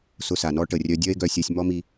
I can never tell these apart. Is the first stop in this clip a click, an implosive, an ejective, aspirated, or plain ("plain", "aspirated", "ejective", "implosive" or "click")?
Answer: plain